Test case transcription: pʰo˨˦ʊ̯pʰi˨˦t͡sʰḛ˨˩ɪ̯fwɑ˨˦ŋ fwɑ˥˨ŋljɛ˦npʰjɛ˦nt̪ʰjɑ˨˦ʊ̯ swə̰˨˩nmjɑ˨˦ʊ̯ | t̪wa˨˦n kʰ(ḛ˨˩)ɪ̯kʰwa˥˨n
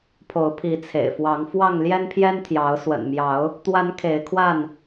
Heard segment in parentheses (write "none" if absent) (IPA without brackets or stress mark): e˨˦